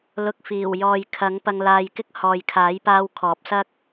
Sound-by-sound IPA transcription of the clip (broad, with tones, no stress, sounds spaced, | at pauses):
l ʊ˨ k̚ f iː˨˩ w j ɔː˨ j kʰ ɐ˨˥ ŋ p ɐ˧ ŋ l aː˧ j k ɪ˥ k̚ h ɔː˨ j kʰ aː˨˥ j p aː˧ w kʰ ɔː˨˥ p̚ s ɐ˥ k̚